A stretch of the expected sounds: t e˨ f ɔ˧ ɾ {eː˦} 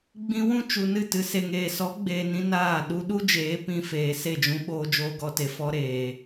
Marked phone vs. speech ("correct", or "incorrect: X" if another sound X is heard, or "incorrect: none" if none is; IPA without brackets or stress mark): incorrect: eː˨